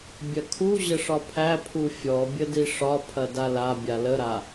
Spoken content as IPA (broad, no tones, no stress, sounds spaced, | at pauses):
bʲ ɐ kʰ u ʑ ə ʂ ɒ pʰ æ pʰ u fʲ ɔ bʲ ə d i ʂ ɒ pʰ ɐ d a l a bʲ a l ə ɾ a